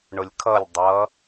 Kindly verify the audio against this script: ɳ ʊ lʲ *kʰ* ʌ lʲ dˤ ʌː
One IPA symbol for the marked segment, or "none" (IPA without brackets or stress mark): kʰ